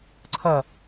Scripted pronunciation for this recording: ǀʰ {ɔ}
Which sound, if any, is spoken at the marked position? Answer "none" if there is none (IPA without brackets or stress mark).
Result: ʌ